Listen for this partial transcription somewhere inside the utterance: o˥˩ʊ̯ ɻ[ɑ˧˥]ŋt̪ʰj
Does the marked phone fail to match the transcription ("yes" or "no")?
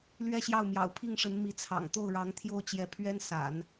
no